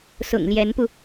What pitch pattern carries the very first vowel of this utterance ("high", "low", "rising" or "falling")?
low